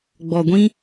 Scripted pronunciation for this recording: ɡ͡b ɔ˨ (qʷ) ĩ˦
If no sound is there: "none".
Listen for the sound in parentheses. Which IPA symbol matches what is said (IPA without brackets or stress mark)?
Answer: ɡʷ